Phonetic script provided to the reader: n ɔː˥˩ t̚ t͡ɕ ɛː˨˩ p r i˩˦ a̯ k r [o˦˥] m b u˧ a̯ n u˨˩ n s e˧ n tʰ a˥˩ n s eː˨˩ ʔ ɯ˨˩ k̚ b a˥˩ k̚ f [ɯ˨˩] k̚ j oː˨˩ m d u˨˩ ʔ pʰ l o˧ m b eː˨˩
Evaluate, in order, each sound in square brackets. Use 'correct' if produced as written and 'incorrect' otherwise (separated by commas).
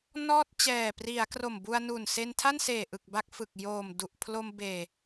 incorrect, correct